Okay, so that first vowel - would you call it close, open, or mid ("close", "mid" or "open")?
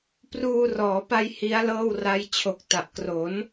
close